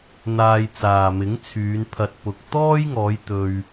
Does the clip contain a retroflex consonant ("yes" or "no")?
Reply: no